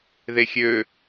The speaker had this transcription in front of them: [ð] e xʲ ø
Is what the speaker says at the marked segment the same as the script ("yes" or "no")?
yes